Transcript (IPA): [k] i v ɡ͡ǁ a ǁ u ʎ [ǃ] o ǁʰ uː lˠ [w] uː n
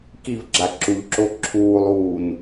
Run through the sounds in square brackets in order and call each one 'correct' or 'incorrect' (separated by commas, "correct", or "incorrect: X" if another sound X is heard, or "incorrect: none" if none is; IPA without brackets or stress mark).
correct, incorrect: ǁ, correct